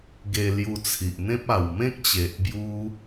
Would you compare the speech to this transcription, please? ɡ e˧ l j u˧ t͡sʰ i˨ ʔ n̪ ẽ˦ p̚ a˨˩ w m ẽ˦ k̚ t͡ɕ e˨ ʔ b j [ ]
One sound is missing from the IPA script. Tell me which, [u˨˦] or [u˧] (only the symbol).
u˧